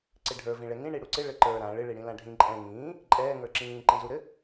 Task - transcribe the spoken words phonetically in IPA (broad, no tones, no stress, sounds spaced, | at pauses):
ǀ ɪ ɖʱ ə˞ v ĩ ɭ ɛ ŋ ĩ ɳ i ɽ u ǀ ɪ ɭ ɘ ǃ ə˞ ɾ ã ɭ ɪ ɭ i ɽ ĩ l ã ɖʱ ĩ ǃʼ ɛ̃ ŋ ĩː | ǃʼ ɛː ŋ ə˞ ǁ ĩː ǃ ĩ z u ɾ ɘ